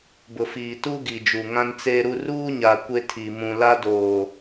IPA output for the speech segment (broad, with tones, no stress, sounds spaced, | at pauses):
b ʊ˨ f iː˨ t u˦ ɡ i˨ d͡ʒ u˨ ŋ ã˦ n t͡s eː˦ ɾ u˦ r uː˦ ɲ a˨ kʷ e˦ tʰ i˨ m ũ˨ l a˦ d oː˨